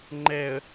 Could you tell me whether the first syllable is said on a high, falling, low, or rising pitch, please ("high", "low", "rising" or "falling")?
low